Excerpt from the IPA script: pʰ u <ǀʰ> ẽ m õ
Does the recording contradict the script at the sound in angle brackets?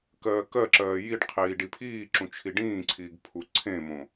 no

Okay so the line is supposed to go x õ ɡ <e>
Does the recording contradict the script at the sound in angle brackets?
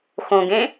yes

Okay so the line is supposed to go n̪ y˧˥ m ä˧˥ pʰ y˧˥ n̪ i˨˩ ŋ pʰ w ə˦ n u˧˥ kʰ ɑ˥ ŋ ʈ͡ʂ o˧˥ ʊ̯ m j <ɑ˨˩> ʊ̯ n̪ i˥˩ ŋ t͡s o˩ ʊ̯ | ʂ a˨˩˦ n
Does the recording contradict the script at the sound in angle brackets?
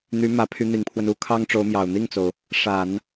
no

